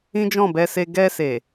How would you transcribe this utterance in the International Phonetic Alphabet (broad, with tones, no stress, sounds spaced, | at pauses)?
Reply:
ĩ˦ d͡ʒ ɔ̃˦˨ b ɛ˧ s e˧ ɡ ɛ˧ s e˨